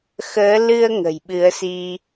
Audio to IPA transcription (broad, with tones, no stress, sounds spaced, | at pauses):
x əː˨˦ l ɨ˧ ə̯ ŋ ə̤˨˩ j ɓ ɨ˨˦ ə̯ s i˧